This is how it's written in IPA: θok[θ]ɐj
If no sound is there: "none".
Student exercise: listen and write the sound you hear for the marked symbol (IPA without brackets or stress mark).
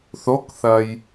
θ